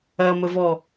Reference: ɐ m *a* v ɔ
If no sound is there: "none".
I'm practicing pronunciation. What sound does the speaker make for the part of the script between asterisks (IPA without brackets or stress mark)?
ə